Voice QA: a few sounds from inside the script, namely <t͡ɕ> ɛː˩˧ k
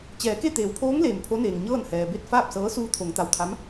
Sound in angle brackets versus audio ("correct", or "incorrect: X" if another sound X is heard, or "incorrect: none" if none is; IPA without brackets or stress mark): correct